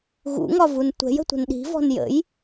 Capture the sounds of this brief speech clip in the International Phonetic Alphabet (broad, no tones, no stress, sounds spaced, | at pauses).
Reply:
ɣ ṵ ŋ ɒ v u n tʷ ɛ̤ j ə̤ tʷ ə̤ n ɗ i̤ v ɔ̤ n j ə̰ j